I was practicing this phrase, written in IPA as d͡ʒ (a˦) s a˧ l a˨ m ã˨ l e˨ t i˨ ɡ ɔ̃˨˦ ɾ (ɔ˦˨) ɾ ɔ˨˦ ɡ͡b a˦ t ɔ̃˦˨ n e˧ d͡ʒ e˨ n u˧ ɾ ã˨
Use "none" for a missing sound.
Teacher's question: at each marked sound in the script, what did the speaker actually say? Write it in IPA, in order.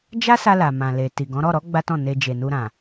a˦, ɔ˦˨

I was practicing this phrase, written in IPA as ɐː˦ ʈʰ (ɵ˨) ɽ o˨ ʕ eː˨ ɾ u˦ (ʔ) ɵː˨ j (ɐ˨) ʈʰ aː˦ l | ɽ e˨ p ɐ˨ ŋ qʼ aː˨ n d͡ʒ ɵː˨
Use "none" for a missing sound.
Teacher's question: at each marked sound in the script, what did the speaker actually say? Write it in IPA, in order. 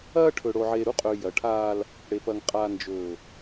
ɵ˨, qʼ, ɐ˨

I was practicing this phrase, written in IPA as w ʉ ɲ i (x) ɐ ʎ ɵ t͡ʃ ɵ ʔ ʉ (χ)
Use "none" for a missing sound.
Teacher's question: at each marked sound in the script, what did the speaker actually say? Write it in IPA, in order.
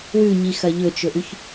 x, ç

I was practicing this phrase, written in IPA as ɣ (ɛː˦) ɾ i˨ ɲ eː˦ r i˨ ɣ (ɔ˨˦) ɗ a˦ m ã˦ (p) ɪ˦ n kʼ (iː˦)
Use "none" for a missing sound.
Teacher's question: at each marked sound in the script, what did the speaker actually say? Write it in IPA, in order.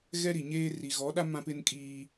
ɛ˦, ɔ˨˦, p, iː˦

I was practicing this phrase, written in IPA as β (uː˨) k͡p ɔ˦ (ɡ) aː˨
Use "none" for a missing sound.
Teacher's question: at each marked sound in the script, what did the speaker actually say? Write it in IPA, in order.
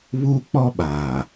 uː˦, ɓ

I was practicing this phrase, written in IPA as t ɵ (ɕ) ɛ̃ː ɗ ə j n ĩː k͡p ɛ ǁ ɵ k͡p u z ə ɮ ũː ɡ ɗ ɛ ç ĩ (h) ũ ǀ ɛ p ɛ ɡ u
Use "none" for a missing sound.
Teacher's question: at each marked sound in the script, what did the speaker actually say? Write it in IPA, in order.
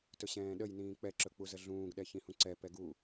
ɕ, h

